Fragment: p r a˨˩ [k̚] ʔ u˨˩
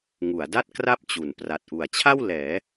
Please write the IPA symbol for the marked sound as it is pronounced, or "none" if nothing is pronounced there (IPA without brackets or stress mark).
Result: t̚